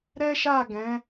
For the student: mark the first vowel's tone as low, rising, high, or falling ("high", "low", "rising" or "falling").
high